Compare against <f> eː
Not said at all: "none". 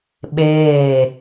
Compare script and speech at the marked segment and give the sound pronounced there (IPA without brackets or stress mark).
ɓ